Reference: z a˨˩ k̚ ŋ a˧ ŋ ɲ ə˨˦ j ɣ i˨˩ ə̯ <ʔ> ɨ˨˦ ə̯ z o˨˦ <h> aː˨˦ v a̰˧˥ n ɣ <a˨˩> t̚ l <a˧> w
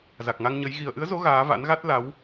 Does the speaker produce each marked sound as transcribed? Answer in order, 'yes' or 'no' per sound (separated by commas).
yes, no, no, no